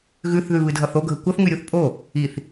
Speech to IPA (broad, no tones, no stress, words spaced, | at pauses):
ɣʉθðʉβɨdʱʌθ oɡʱə kʷʌθŋʉɾʲuθ pʼo | iθ